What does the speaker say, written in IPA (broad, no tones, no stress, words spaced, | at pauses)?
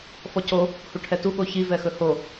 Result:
fɔco | huʈʰɛtu ɠoçi vɛxɵho